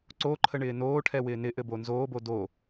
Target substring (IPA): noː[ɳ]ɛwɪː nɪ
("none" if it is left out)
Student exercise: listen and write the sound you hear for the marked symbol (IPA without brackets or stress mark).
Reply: ʈʰ